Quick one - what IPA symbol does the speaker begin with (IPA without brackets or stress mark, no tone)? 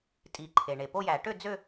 tʼ